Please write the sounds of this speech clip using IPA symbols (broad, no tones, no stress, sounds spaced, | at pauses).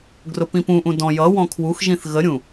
ɡ r ʊ p ĩ p ũ ʔ ũ d ɔ̃ j ʌ w ɔ̃ kʰ w u x ʒ ĩ θ ɣ ə ɾʲ ũ